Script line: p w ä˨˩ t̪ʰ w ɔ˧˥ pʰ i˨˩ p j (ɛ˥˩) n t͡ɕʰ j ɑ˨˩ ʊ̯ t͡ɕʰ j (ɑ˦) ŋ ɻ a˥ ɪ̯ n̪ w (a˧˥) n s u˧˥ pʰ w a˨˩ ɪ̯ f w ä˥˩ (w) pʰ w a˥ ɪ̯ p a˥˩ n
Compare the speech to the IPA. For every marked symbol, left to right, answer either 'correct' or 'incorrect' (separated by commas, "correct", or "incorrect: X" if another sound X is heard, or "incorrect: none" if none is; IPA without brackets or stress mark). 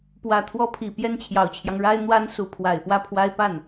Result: correct, correct, incorrect: a˥, incorrect: none